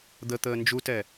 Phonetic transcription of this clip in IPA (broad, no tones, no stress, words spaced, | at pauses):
d̪ət̪əː nd͡ʒutɛ